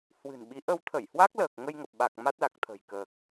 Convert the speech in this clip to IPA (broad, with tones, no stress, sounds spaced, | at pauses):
h w ɨ̤˨˩ n ɓ i˨˦ ʔ ə˧ w t̪ʰ ə˧˩ j h w a˦˥ k̚ l əː˨˩ k̚ ŋ ə˧ j ŋ ə˨˩ p̚ ɓ a˨˩ k̚ m a˦˥ t̚ l a˨˩ k̚ t̪ʰ ə̤˨˩ j k əː˨˩ k̚